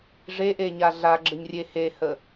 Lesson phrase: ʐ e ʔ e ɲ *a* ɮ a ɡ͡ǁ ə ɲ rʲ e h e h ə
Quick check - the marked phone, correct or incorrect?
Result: correct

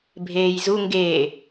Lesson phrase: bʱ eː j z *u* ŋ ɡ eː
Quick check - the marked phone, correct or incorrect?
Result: correct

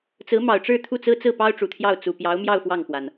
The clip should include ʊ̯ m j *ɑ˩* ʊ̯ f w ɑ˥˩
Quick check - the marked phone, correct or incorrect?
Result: incorrect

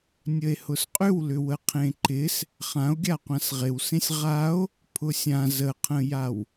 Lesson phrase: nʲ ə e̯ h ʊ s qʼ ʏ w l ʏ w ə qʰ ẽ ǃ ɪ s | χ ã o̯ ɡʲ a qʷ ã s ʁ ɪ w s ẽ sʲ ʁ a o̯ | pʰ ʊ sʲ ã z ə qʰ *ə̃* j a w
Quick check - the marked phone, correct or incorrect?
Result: correct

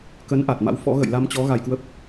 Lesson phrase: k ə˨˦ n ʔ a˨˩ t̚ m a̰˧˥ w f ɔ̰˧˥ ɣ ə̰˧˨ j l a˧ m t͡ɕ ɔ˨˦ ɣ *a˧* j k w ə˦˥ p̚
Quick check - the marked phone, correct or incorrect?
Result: correct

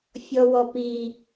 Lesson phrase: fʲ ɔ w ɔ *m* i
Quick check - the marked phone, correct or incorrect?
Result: incorrect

